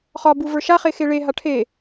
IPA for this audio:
χɒbuvə˞ ʃaχexe ɭeɦa ʈʰe

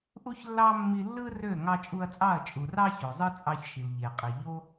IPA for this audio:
ʔu˦çlːɑ˦ mːi˧lːɯ˦rø˦˨ ŋɑ˧t͡ʃʼu˧ɐ̯t͡sʼɑ˦˨ɐ̯ t͡ʃʼu˨rɑ˦ ço˨zˤɯ˦t͡sʼɑ˧çʃi˨l ʎe˨qʼi˨ ʎo˦

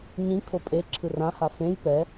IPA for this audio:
ɲĩ kʰopʼe ǁʰɯrãha fẽj pɛ

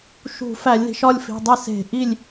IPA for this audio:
ʃṳ˧˩˧ fæ˧˩˧lʲði̤˩˧ʃɒ˥˨lʲfi̤˩˧˩ dˤi˥˨ se̤˧˩˧ʔi˥˨lʲ

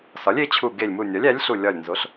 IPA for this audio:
sɒ˩˥lʲe˩˥t͡ɕʰu˧˩ ɡe˧˩lʲmu˧˩nʲɒ˩˥lʲ æ˩˥lʲɬu˧˩lʲɒ˧˩lʲ nzo˩˥ɬ

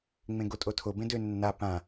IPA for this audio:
ŋ͡mẽɡotʼotʰo bẽdø nːa pã

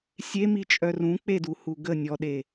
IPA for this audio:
sʲemit͡ʃʼœ rũk͡peduhu ɡə nʲɔɗe

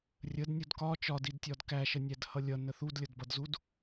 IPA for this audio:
rʲədnʲud kɒ t͡ʃɒdidtʲɒd kæʃənʲædhʌ lʲʌnə θudlʲʌdbʌdzud

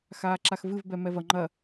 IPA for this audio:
xaːǁaxvɨv bɛmɛvɐ ŋ͡ǃɐ

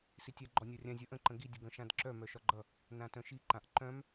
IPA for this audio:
sitʲa ɡ͡ǃɔnʲɒrʲã zʲʌʔə̃ ǃə̃ɡi dʲəɡœ̃ʃãdǁœ mœʃɒɡ͡ǃʌ | nãtœ̃ʃi ǃãʔǃœ̃m

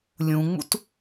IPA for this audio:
lʲũŋ͡mṵt

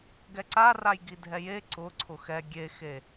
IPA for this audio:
ɡɛǀaraj ɡidʱɛje ǀʊ ǀʰʊxɛ ɡʲexe

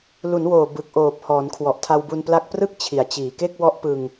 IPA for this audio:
lu˩˦nwoː˨˩ bɯ˨˩k̚ʔoː˨˩p̚ hɔː˩˦nkʰwɔ˨˩ʔtʰa˧w bu˧npla˦˥k̚prɯ˥˩k̚ t͡ɕʰi˩˦a̯t͡ɕiː˨˩ ke˥˩k̚wɔ˦˥ʔpɯ˧ŋ

